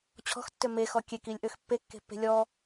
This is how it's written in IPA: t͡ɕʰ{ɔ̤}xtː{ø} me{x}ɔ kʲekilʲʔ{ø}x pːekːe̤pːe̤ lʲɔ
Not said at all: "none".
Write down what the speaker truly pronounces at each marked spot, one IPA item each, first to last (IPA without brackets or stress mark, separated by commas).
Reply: ɔ̤, ø, x, ø